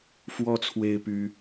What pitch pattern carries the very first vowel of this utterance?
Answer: high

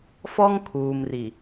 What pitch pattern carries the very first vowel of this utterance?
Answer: high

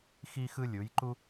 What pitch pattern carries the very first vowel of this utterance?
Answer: high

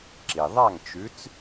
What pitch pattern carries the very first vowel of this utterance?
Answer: low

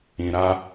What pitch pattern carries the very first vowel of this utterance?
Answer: low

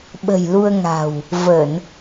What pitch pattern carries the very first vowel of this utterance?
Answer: low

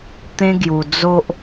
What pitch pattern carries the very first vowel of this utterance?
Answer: high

